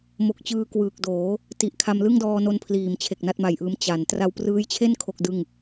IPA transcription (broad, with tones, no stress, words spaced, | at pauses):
mo˨˩k̚t͡ɕɯː˧ kwɯː˨˩k̚doː˩˦ | ti˨˩ʔkʰa˧m lɯ˥˩ŋdɔː˧no˧npʰliː˩˦m t͡ɕʰe˨˩k̚na˥˩t̚ma˨˩jʔɯː˦˥m t͡ɕa˩˦n tra˧wprɯː˦˥jt͡ɕʰe˥˩n kʰo˥˩k̚dɯ˥˩ŋ